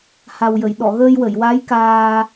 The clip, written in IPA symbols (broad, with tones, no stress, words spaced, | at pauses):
ha˨˩wjə˨˩˨j ɗɔ˨˩˨ɣəː˧jwə˨˩˨jwa˧˥j kaː˧